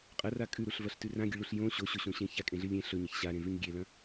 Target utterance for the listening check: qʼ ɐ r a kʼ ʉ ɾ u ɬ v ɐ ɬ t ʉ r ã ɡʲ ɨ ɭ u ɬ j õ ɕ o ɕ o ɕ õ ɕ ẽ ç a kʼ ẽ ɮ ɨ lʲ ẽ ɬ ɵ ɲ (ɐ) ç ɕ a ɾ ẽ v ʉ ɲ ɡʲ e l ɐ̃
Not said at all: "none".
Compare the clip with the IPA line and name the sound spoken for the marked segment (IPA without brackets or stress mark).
ɐ